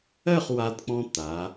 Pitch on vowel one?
falling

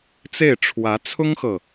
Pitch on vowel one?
falling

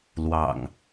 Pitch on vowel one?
low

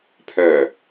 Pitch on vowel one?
low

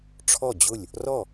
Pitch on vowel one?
falling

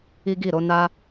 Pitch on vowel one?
high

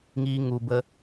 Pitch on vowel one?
high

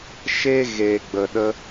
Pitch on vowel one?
high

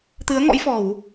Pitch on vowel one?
rising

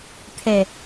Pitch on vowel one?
low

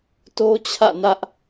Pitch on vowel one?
high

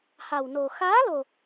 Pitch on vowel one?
low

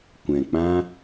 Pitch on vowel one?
low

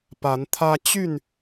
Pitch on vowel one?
rising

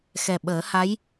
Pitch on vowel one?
low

